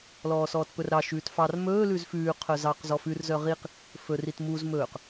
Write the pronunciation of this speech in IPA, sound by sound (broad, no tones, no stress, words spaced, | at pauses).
lɔːsɔːtpɵrɾɑ ʃʉːtfɑr mɵː lʉzfʉː qʰœzɑq zɔfʉr zœʁiq | fɵr itmuz mɵːq